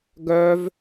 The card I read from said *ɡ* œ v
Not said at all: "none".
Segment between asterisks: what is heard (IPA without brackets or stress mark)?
ɡ